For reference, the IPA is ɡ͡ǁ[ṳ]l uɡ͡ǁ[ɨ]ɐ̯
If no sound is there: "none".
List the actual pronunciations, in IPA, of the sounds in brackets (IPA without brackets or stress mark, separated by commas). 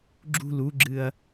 ṳ, ɨ